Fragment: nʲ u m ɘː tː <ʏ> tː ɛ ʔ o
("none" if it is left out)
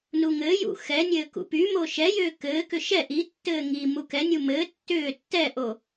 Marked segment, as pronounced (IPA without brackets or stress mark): ʏː